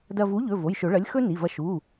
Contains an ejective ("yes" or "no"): no